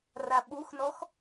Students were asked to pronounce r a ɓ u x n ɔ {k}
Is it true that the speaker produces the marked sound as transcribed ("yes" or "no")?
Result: no